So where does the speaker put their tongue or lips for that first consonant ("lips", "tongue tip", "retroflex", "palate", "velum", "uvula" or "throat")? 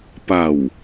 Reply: lips